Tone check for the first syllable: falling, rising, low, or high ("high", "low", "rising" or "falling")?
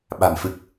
low